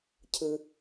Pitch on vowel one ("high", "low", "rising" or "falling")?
low